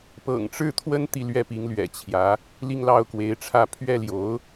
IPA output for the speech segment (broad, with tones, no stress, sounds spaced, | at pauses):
p ɤ̰˨˩ ŋ ʈ͡ʂ ɻ̩˥˩ t̪ʰ w ə˥ n t̪ i˥˧ l ɥ ɛ˥˩ p i˧˥ ŋ l ɥ ɛ̰˨˩ t͡ɕʰ j ä˧˥ | l i˥˧ ŋ l ɑ˥˩ ʊ̯ k w e˧˥ ɪ̯ ʈ͡ʂʰ ä˥˧ pʰ ɥ ɛ˥˩ l j o˧˥ ʊ̯